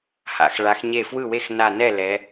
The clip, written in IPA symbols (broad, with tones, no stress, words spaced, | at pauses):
ha̰˩˧x ɭa˩˧xɲe˧˩ fwɯ˥˩we˥˩x na˧˩nɛ˥˩ lɛ˩˧